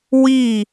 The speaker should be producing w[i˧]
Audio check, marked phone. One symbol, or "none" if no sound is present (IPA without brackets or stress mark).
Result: i˥˩